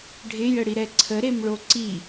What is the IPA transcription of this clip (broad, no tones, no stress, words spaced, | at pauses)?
ɖʱɪjəɽi ɾɛǀʰəɾem ɭoǀi